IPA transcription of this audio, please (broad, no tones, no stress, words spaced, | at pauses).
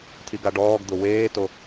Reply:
tʰiɡaɖɔːɡd̪ʊ weːto